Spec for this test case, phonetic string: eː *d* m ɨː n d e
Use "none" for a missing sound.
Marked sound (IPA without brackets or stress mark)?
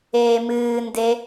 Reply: none